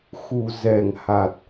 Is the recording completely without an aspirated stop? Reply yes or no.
yes